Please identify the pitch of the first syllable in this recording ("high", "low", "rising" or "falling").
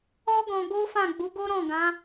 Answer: high